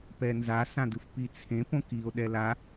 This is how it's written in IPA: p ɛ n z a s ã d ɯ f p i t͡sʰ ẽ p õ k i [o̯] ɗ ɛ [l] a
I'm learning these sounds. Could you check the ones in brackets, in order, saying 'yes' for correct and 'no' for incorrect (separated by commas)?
yes, yes